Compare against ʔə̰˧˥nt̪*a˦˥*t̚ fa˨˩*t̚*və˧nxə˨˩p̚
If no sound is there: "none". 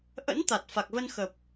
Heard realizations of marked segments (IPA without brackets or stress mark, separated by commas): a˨˩, k̚